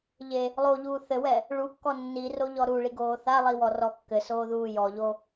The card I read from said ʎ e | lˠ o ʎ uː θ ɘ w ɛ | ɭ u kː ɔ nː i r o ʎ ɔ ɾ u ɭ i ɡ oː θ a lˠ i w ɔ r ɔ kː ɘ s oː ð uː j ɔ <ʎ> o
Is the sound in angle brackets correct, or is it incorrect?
correct